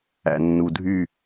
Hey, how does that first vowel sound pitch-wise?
low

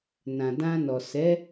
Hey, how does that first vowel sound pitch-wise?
low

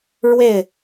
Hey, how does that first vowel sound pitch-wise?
falling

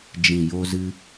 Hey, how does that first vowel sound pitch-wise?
low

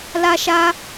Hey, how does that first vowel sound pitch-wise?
high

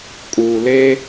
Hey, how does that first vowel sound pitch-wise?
low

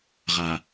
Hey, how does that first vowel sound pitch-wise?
low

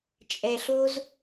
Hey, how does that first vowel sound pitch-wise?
low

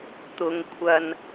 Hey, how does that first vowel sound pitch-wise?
low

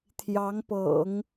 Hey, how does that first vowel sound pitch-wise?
rising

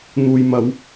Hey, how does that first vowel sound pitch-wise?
low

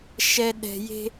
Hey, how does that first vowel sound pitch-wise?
low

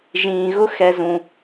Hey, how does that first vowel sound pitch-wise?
low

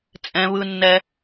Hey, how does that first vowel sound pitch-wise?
low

